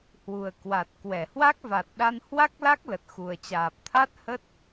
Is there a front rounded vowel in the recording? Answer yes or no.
no